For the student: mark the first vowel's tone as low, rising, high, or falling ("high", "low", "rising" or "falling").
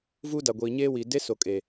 high